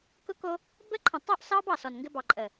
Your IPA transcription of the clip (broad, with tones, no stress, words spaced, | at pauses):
kʊ˦ko˦ | bə˦ǃʰə̃˨ tˤo˦ʔsɑ˦bɑ˨ sɔ˨nŋɡɘ˦ bɑ˨ǃʼə˨